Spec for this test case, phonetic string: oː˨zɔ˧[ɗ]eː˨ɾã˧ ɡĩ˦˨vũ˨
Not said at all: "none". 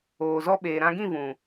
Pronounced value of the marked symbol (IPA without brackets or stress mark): ɓ